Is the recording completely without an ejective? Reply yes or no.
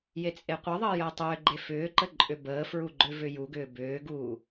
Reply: no